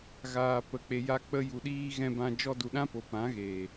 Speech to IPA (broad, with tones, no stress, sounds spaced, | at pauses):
ɣ aː˨ p ə˨ k͡p e˨ j a˧ k͡p ə˧ j u˨ ɗ iː˧ ɣ ɛ̃˧ b ã˧ d͡ʒ ɔ˧ d u˨ ɗ ã˦ p o˨ p ã˨˦ ɣ eː˨